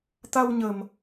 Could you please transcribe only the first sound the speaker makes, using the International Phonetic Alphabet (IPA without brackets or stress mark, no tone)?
t̪